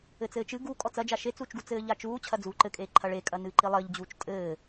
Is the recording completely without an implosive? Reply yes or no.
yes